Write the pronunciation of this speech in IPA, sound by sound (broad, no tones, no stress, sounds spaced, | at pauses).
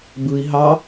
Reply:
b ɯ i̯ ɦ ɑ